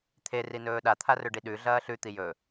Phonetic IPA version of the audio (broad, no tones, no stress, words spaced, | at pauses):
t̪ʰe rinɵːɗa t̪ʰarɵɖiɗʉ ɮɐːɬʉ t̪ijɵ